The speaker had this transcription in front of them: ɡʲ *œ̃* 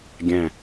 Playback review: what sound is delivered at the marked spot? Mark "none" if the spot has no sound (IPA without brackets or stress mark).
æ̃